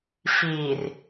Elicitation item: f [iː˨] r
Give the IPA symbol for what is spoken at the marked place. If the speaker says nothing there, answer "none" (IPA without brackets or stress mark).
iː˨